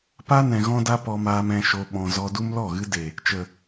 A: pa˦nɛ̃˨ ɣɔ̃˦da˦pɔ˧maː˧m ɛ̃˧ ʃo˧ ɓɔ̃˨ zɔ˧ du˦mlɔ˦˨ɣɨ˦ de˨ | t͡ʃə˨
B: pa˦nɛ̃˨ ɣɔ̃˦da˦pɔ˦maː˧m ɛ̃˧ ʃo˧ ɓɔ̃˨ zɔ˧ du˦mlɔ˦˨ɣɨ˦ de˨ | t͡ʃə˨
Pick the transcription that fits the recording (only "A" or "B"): A